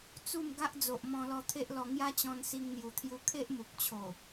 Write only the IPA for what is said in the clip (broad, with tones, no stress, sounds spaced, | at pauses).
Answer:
t͡s u˥˧ m ɡ a˦ ʔ d͡z o˨ ʔ m ɔ̃˧ l ɔ˧ t̪ʰ e˦ ʔ l ɔ˧ ŋ j a˦ t͡ɕ ɔ̃˧ n s i˧ ŋ n̪ j u˨˩ t̪ʰ j u˧ kʰ e˦ ʔ m u˨ k̚ t͡ɕʰ o˨˩